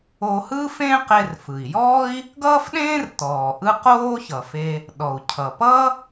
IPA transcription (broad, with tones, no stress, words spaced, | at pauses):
o˧hɯ˥fẽ˥ qe˧rfɯ˩i̯jɔː˥i̯ | ɡʌː˥fɗẽː˥rtɔː˩ ʔɯ˥ qoː˥çʌ˩fe˧ | ɗɔ˩u̯ cʰʌ˩pʌ˥